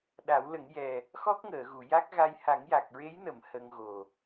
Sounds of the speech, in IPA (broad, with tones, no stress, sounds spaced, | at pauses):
ɗ a˨˩˦ w l ə˨˩˦ ŋ j ɛ˨˩ | x ɔ˦˥ k̚ ŋ əː˨˩˨ ɣ u˨˩˨ j a˦˥ k̚ ɣ a˧ j h a˨˩˦ ŋ j a˨˩ k̚ ɹ e˧˥ j n ə˨˩˨ m h ə˧ ŋ ɣ o˨˩